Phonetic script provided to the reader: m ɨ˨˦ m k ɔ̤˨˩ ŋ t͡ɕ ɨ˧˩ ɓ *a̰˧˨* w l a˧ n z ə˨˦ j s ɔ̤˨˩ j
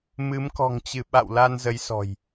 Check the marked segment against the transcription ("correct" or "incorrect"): correct